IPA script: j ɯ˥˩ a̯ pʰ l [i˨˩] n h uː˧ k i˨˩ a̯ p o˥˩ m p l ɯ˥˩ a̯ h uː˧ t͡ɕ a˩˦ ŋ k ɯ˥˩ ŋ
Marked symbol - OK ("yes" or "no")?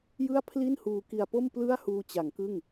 no